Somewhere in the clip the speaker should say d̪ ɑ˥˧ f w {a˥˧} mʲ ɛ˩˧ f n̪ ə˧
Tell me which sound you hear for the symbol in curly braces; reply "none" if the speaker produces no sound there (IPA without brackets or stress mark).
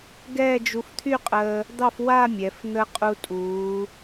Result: a˥˧